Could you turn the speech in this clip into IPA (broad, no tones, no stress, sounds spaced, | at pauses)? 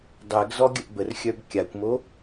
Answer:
dˤ ɛ ɡ z ɔ ɡʲ ə ʔ b ə r xʲ œ b kʲ a kʷ m o